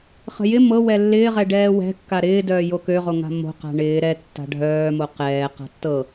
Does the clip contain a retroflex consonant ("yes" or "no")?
yes